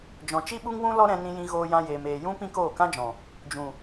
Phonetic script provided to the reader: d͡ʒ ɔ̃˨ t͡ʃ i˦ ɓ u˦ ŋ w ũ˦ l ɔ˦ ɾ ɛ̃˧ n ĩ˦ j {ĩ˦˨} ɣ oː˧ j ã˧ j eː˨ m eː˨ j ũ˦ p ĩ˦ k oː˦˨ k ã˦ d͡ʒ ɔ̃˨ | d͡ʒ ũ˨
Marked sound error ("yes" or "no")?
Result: yes